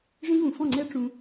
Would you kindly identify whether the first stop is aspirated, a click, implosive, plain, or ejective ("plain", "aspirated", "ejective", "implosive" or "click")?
click